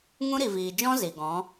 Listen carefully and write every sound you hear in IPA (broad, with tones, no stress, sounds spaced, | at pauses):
ŋ ũ˦ ɾ i˨ v iː˨ d͡ʒ ɔ̃˦ z i˨ ɡ ɔ̃˨˦